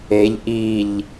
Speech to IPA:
eʎ ʔiʎ

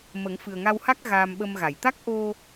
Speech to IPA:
mə˨˩˦ŋfɨ˨˩ə̯ ŋa˧wha˦˥k̚ ɣaː˧mɓə˧mɣa˨˩˨j t̪a˦˥k̚ʔo˧

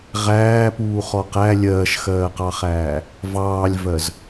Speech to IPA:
ʁæːpuːχɔ qæ lʲɜːʃxɜːqɑχæː | vɑːlʲvɜz

